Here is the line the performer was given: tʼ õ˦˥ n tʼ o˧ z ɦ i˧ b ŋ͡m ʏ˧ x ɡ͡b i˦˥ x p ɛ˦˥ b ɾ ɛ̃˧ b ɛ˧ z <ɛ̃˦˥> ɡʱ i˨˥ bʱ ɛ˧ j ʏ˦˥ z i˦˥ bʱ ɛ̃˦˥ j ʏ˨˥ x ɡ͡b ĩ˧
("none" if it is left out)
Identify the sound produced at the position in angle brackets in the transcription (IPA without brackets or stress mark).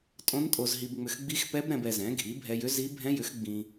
ɛ̃˨˥